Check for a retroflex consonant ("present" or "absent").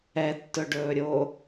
present